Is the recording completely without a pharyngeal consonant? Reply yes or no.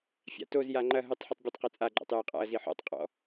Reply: no